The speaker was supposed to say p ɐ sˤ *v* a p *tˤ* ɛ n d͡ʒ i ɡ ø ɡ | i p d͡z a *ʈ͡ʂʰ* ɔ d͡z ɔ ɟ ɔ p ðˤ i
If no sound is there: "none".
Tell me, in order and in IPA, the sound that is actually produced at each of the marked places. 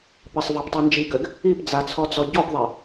v, tˤ, t͡sʰ

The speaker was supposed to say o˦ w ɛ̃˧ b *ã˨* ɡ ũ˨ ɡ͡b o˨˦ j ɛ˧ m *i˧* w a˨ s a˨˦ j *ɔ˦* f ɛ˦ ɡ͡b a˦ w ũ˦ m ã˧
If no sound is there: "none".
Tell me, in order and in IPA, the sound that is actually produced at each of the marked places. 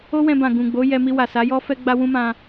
ã˨, i˧, ɔ˦

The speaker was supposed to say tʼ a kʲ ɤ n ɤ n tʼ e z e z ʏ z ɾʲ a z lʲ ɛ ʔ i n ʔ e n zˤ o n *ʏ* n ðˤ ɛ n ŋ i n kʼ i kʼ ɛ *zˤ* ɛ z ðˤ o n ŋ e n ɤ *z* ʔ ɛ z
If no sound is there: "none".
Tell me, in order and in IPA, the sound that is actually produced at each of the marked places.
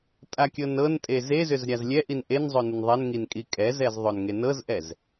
ə, z, z

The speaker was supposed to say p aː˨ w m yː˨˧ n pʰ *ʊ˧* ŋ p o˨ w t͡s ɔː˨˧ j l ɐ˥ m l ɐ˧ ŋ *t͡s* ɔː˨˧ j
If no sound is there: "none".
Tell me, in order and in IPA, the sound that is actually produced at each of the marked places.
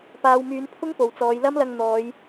ʊ˥, n̪

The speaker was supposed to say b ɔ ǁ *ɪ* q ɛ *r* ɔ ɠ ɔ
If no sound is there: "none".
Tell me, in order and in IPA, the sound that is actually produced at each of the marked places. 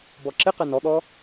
ɪ, n

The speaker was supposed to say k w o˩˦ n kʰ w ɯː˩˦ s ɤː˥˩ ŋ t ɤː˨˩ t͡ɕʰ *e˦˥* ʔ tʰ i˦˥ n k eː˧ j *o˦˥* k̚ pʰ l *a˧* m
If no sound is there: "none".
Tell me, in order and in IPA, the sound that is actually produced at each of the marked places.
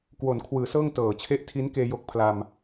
e˦˥, o˦˥, a˧

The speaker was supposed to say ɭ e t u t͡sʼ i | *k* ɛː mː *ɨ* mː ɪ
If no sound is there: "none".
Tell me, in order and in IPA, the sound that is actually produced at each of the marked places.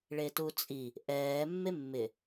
ʔ, e

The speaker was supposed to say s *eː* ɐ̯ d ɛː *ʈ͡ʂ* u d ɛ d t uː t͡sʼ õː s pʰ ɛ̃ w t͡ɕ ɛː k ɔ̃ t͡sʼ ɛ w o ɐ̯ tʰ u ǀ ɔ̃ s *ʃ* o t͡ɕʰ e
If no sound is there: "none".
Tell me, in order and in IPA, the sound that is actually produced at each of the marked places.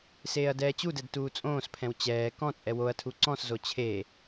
eː, t͡ɕ, z

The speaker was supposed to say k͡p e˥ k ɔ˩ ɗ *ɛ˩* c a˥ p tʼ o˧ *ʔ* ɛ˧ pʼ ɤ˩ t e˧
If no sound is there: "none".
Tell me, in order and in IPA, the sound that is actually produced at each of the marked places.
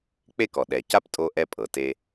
ɛ˩, ʔ

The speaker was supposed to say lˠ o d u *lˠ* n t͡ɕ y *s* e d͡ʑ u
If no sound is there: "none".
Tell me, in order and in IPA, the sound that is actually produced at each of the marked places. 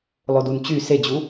none, s

